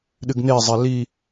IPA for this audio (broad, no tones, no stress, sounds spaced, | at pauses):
ɗ ɨ ɡ n e zˤ e l i